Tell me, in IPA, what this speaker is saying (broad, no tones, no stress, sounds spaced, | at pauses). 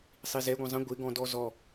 sˤ i z ɛ ɡʷ ɐ̃ zˤ ə̃ ɡʷ ɪ ɡ ɔ̃ d ɔ z ɔ